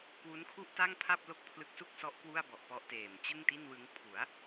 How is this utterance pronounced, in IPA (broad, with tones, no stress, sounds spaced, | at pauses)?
k w u˦˥ n kʰ u˥˩ ʔ t a˥˩ ŋ pʰ a˥˩ p̚ l o˥˩ k̚ pʰ l ɯ˦˥ k̚ s u˥˩ k̚ s ɔ˦˥ ʔ k w u˥˩ a̯ b ɔ˨˩ ʔ p ɔ˦˥ ʔ t eː˨˩ m t͡ɕ ɯ˥˩ ŋ t i˥˩ n w ɯ˦˥ ŋ pʰ u˩˦ a̯